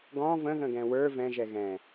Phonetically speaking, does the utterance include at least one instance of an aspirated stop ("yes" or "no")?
no